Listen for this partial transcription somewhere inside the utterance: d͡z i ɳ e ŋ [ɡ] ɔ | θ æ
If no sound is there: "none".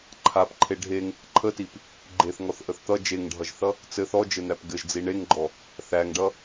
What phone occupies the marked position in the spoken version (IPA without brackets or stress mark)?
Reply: ɡ͡ǃ